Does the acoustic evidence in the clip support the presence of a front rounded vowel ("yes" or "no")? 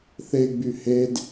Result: yes